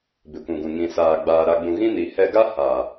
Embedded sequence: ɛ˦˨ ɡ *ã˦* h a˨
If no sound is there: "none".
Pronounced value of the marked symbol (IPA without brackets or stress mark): a˦